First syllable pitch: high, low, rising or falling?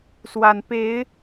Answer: low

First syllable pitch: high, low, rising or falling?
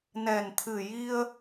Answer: low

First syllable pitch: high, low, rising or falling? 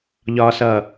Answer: low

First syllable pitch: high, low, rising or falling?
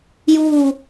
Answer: falling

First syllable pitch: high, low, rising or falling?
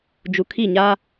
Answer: low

